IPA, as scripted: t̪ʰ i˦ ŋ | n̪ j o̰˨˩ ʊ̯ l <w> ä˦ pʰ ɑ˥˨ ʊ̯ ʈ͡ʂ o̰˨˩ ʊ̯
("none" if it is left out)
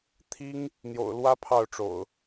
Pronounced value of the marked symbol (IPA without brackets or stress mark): w